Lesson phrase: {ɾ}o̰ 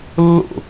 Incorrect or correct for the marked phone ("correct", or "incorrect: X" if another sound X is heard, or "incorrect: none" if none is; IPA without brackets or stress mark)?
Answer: incorrect: lː